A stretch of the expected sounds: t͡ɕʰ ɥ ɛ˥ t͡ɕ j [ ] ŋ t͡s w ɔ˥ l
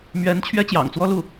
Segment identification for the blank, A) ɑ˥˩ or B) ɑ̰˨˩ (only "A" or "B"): B